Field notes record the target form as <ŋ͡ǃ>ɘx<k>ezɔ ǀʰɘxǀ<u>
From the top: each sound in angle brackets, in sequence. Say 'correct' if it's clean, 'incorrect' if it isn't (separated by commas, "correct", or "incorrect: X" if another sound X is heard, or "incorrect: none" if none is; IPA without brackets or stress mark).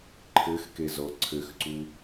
incorrect: ǃʰ, correct, correct